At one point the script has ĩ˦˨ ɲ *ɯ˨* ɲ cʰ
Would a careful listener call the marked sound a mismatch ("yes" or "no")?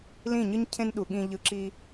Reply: yes